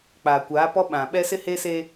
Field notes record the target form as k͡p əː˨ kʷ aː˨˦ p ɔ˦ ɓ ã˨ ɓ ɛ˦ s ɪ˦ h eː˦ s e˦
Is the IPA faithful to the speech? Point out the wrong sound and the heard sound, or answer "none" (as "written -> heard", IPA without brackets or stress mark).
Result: əː˨ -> aː˨